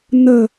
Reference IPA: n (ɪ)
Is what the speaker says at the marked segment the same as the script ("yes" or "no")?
no